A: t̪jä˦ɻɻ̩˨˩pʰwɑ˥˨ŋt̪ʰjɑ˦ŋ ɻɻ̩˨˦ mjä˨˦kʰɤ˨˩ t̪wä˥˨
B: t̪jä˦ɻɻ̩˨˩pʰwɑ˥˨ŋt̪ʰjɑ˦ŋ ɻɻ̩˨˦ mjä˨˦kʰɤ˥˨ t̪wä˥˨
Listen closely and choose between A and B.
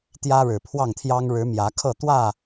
B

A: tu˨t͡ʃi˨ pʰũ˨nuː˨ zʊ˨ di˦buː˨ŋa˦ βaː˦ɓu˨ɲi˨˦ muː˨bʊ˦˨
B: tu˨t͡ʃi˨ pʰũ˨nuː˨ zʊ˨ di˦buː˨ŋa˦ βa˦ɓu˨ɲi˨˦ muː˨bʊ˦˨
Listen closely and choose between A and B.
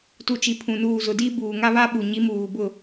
B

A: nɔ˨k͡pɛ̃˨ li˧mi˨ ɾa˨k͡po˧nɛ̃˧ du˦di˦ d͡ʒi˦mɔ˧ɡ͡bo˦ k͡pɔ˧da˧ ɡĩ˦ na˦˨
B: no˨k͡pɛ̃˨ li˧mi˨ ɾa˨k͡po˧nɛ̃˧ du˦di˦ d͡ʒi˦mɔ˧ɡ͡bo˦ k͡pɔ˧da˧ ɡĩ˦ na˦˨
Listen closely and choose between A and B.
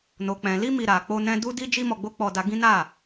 B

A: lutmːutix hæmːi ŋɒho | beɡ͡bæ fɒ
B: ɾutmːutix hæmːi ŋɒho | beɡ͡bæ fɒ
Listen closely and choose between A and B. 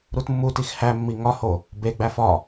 B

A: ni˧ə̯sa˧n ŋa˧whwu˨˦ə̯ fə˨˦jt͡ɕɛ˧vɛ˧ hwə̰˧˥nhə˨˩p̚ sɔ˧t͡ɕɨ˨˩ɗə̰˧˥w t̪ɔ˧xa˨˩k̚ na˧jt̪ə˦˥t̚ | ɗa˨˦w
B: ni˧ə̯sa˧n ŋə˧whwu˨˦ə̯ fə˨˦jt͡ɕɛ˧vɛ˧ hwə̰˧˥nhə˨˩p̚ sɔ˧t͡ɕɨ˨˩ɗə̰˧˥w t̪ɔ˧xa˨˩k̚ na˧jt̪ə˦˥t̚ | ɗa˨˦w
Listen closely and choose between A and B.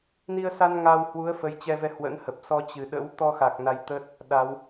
A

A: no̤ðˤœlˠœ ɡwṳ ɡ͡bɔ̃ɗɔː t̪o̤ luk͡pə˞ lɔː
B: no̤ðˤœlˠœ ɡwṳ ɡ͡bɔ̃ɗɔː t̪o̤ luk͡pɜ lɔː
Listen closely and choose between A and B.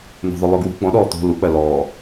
B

